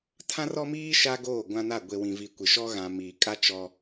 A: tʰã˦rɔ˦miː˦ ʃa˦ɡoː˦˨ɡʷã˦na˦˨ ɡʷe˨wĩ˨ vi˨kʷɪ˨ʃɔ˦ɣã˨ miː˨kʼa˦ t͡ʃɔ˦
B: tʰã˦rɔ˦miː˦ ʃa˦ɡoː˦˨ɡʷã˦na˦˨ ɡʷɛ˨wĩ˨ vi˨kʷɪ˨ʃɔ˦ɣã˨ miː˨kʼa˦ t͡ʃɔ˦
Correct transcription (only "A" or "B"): A